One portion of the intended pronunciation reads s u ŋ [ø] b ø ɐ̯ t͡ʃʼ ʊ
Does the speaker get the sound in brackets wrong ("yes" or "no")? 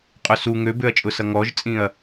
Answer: no